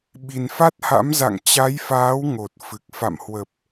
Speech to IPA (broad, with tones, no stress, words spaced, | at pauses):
ɓi˨˩nfa˦˥t̚ha̰˧˥mza̰˧˨ŋ t͡ɕa˨˦jfaː˨˦w ŋo˨˩t̚fɨ˨˩k̚ fa̰˧˨mhwə˨˩p̚